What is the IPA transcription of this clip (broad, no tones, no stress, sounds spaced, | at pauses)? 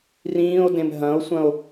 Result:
r ĩː o̯ d ẽ m ɦ ɐ̃ o̯ sʷ ɐ̃ o̯